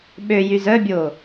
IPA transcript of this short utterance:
ɓø jyzœbʲoː

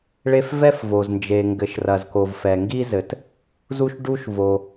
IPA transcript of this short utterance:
ɭe˥f vɛ˥fvo˩z nd͡ʒe˩ŋɡɘ˩ʃ rɐ˩zko˩v fɛ˩ŋɡi˥zɘ˩t | zu˥ʃɖu˥ʃvo˩

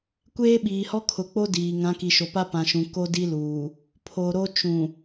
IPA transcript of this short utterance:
kʷeː˦ɓiː˨hɔ˦ kʰʊ˨k͡po˦ diː˨ ŋã˨˦ki˨ʃo˨pa˦ pã˨ʃũ˨ ko˦di˦luː˨ | pʰo˨ɾo˦ t͡ʃũ˨

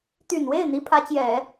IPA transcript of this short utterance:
t̪y˨˩nwe˥˩ɪ̯ n̪i˧˥pʰä˧˥t͡ɕjɛ˨˩˦

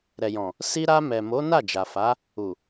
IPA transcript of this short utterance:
ɾɛ˨jɔ̃˨ | si˧ɾa˧mɛ˨mo˨˦ na˦˨d͡ʒa˨fa˨˦ | u˨

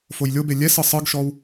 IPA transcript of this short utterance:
fojlʲobe lʲɛsɯ sˤɯɡʃɔw

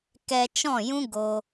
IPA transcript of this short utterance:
kɛ˧t͡ʃɔ̃˦˨jũ˦ ɡo˧

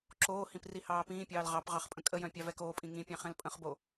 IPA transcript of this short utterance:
ǁoːhĩp rihɑːpĩːpʲɑːl ʁɑp ʁɑχpʼə̃kʼəjœ̃ pʲɑvɛkoːpʼĩ ŋĩpʲɑ̃ χɛ̃lpʼə̃χbo

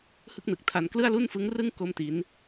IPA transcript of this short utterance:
hɯ˥˩k̚nɯ˨˩k̚tʰa˧n klɯ˥˩a̯lu˥˩nfɯ˦˥ŋrɯ˥˩ŋ ko˥˩mti˦˥n

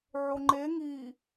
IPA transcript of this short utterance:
ʕoŋ͡ǃe ŋi

